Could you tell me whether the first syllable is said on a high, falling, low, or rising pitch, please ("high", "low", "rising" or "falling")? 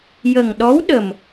low